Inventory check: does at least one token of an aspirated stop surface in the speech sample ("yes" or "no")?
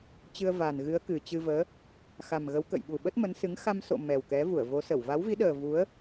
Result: no